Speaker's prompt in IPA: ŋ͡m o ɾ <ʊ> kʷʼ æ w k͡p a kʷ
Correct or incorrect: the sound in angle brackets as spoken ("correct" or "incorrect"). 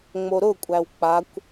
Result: correct